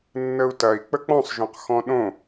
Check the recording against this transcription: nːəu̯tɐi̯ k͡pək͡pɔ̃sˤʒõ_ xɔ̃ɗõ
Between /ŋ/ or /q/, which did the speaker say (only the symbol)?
q